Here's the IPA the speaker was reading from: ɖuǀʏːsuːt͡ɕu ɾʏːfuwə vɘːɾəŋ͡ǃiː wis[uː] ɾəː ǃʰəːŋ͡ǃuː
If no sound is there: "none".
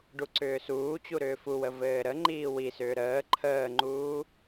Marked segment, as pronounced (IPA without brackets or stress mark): ʏː